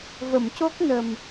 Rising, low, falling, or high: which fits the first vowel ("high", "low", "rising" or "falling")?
low